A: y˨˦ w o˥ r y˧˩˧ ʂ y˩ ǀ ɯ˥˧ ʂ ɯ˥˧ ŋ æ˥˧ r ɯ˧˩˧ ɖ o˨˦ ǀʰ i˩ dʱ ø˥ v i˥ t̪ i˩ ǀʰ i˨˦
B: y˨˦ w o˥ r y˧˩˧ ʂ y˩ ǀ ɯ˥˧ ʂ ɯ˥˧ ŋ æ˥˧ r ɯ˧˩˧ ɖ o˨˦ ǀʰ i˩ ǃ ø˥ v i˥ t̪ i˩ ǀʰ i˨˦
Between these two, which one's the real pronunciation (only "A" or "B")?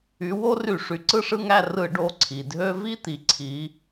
A